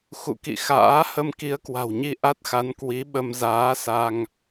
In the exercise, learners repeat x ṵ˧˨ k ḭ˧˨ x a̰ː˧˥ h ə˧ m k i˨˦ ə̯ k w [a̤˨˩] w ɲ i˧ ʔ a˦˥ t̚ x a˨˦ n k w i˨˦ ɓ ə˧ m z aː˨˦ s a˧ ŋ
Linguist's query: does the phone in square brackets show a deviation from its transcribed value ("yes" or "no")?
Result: no